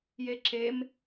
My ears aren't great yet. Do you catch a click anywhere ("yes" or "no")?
yes